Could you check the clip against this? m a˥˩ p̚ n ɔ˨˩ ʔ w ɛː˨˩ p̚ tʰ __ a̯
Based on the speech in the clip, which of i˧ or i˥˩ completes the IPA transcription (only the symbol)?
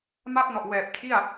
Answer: i˥˩